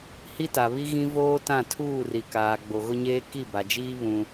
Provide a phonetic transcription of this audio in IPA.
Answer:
h i˦ t a˨ β i˦ ɣ ĩ˦ v oː˦ t ã˦˨ tʰ uː˦˨ r i˨ k aː˨ ɡ͡b o˨ ɣ ʊ˦ ɲ eː˦ k i˦˨ b a˨ d͡ʒ iː˦ β ũ˦

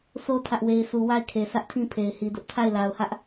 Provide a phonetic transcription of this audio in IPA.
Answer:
s o˦ tʰ ä˦ ʔ w e˦ ɪ̯ s u˦ w a˦˨ ɪ̯ kʰ e˨ s ä˦ ʔ tʰ ĩ˦˨ pʰ e˨ ɪ̯ h i˨ d ʊ˦ ʔ tʰ a˦˨ ɪ̯ l a˨ ʊ̯ h ä˦ ʔ

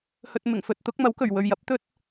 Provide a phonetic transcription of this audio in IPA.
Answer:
h ɵ˧ t̚ m ɪ˨˩ ŋ f ɵ˧ t̚ t̪ ʊ˨˥ k̚ m ɐ˨˥ w k ɵ˨˩ ɥ w ɵ˨ ɥ j ɐ˨˥ p̚ t̪ ɵ˥ t̚

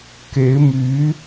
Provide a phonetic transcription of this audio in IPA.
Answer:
k e˧˥ ɪ̯ m y˧˥

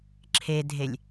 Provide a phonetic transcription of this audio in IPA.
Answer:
ǁʰ e dʱ e lʲ

